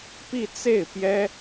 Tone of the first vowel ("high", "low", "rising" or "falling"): falling